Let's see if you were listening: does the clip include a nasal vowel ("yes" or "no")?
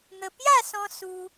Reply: yes